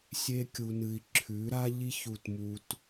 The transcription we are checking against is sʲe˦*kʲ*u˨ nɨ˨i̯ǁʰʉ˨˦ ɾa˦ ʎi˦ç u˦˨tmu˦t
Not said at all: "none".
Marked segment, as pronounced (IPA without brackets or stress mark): kʲ